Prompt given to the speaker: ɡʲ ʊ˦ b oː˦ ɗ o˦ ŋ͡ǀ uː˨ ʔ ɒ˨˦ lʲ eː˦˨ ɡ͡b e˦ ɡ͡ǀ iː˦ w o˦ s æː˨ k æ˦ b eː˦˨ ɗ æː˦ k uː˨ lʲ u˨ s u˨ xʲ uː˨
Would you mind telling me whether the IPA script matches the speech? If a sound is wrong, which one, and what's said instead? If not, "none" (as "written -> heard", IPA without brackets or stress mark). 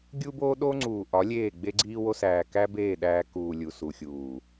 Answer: ʊ˦ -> u˦